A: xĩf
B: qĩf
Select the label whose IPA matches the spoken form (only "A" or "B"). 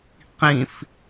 B